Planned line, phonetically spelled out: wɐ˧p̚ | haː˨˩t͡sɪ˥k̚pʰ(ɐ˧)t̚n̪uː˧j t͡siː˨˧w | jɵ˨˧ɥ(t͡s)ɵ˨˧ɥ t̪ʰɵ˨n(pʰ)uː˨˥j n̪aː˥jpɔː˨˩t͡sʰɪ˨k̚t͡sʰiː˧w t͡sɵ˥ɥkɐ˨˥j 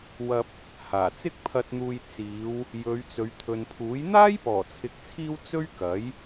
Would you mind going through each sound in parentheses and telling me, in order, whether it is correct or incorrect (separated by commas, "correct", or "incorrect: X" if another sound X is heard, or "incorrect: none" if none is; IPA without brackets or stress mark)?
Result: correct, correct, correct